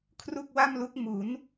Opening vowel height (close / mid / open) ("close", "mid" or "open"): close